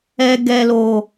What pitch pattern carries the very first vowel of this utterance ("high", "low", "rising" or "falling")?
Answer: high